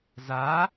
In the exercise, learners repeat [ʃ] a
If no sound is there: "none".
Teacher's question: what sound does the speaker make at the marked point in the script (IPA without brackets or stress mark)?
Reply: z